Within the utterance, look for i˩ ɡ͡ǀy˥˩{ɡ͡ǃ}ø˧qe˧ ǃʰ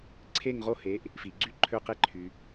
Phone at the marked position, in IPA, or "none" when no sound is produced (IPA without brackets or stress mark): ǃʰ